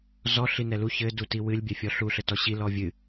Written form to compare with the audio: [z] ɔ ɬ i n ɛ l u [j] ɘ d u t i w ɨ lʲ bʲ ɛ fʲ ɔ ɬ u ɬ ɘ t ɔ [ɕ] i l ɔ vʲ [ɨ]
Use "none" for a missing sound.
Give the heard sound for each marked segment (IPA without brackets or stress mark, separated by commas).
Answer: z, ç, ɕ, ɨ